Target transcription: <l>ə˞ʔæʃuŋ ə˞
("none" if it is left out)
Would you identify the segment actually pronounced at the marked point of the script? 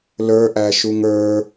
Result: l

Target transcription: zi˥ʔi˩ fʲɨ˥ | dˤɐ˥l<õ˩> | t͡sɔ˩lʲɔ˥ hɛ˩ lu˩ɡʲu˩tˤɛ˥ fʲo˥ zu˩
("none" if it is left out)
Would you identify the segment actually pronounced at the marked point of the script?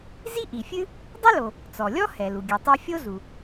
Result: o˩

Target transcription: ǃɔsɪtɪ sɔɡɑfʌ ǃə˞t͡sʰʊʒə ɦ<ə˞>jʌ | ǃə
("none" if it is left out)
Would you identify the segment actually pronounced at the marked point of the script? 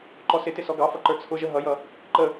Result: ʌ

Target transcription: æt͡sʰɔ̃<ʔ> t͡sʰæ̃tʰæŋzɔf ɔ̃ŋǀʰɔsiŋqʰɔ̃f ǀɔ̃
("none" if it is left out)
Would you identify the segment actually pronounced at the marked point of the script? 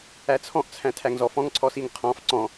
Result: ʔ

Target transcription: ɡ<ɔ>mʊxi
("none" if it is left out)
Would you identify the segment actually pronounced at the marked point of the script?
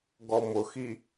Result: ɔ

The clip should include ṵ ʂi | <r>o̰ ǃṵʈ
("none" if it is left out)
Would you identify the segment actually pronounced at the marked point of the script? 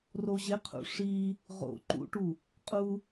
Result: ʁ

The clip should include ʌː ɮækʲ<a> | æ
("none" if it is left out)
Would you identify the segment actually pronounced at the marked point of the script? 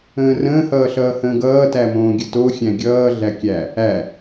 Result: æ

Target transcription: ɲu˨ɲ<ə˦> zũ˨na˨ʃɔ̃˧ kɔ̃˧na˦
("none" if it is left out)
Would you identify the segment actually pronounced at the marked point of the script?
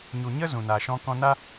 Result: ə˦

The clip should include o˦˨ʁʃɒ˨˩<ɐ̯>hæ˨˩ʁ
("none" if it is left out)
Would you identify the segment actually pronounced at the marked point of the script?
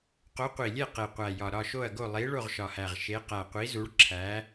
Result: none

